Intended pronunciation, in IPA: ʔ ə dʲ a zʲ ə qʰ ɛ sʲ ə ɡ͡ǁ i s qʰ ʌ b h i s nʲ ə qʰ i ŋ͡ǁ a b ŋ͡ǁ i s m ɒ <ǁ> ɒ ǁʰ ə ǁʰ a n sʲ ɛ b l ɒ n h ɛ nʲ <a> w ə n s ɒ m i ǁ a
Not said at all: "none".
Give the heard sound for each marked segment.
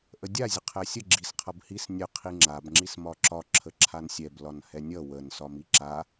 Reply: ǁ, ʌ

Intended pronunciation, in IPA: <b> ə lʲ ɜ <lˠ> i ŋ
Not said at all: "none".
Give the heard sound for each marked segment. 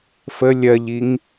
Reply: f, ʎ

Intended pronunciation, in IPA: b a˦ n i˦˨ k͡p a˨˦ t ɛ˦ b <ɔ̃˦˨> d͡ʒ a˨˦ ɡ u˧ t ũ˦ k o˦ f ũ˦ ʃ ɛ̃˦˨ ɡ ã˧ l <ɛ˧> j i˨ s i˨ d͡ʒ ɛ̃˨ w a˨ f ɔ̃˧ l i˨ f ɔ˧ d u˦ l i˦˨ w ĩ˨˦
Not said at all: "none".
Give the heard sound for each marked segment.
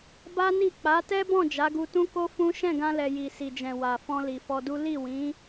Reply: ɔ̃˦˨, ɛ˨

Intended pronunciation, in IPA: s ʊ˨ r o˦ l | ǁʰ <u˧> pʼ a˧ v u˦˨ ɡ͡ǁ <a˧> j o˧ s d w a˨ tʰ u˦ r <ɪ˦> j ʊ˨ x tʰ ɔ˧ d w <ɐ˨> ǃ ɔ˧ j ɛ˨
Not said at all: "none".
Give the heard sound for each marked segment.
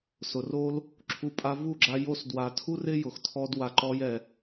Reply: u˧, a˧, ɪ˦, a˨

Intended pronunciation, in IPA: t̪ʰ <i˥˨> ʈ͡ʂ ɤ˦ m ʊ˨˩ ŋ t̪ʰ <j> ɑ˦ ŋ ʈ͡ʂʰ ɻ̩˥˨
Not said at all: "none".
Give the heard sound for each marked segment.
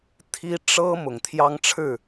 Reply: i˦, j

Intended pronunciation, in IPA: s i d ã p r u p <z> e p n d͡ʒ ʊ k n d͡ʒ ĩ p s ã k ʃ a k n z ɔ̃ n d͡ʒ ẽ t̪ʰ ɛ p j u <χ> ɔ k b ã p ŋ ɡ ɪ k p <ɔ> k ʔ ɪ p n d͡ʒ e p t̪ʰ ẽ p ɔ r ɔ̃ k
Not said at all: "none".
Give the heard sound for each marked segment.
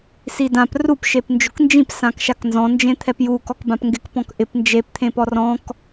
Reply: ʃ, k, ɔ̃

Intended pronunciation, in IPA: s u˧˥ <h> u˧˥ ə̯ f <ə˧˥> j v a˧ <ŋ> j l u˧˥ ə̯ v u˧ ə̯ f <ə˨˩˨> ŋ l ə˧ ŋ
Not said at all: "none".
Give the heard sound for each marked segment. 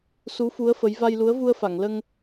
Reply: f, ə˧˥, none, a˨˩˨

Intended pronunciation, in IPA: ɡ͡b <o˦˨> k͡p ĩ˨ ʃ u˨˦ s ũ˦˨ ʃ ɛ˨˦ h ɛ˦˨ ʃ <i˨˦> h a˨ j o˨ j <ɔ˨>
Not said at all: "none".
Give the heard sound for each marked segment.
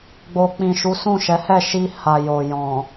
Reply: o˨, i˧, ɔ̃˨

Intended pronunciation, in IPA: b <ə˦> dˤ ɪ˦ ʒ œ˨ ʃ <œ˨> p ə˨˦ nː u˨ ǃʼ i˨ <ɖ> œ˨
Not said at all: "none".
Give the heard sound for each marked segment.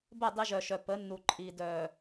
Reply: ə˦˨, œ˨, d

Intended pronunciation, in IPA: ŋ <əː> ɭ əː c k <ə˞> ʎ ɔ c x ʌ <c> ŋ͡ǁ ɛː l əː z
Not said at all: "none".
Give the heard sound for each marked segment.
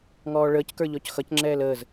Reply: ɔː, ə˞, c

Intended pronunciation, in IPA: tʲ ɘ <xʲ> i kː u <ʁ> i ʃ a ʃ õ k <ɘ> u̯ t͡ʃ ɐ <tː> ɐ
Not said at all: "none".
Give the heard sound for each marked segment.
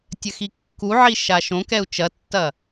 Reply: x, ʕ, ɛ, tː

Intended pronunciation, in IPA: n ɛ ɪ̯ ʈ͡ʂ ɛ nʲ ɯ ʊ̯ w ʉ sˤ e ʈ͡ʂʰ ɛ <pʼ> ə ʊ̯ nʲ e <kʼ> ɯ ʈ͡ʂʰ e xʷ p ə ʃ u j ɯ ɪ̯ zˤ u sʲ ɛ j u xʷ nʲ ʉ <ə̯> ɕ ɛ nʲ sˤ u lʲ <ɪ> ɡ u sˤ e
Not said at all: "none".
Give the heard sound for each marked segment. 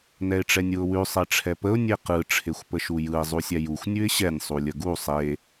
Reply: p, q, ɪ̯, ə

